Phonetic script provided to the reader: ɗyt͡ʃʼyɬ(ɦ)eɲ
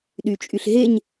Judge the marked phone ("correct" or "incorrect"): correct